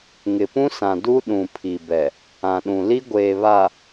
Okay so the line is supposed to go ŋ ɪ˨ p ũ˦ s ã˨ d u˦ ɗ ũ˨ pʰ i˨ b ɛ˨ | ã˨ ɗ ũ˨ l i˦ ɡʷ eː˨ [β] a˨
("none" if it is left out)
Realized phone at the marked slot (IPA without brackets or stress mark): β